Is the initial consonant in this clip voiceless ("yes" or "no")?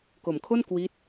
yes